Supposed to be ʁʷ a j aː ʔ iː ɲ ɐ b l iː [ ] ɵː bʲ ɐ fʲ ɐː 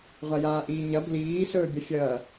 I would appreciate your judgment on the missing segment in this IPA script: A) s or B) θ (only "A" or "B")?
A